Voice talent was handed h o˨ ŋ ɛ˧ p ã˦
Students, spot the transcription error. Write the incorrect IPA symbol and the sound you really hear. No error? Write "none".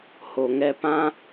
none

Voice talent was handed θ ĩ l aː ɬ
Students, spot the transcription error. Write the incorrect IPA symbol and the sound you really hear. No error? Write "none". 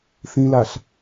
none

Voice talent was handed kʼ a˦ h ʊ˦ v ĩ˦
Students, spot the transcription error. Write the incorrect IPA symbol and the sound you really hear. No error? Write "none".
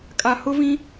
a˦ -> a˨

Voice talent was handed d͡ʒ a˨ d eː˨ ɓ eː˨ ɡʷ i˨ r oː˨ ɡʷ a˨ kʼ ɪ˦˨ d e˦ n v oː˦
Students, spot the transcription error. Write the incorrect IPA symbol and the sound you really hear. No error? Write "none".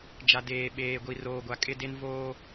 none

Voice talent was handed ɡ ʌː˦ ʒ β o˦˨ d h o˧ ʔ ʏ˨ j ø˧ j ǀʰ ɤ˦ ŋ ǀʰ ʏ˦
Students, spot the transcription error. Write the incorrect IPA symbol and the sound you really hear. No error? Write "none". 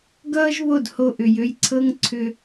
none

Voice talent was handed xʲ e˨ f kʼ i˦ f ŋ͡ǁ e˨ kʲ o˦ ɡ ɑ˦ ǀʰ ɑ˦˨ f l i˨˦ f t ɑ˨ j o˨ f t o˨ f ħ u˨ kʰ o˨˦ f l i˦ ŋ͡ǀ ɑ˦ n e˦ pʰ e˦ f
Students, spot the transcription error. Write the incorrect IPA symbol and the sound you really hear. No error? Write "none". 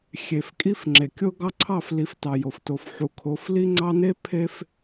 none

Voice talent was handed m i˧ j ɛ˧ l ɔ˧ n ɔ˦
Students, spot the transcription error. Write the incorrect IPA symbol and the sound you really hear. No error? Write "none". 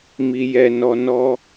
l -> n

